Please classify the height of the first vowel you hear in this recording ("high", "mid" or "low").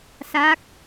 low